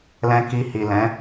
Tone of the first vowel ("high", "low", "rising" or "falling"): low